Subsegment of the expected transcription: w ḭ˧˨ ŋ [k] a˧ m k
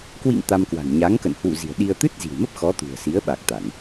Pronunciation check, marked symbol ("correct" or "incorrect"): incorrect